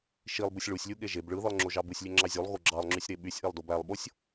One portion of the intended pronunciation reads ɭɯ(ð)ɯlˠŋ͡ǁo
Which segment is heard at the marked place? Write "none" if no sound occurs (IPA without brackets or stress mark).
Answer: ð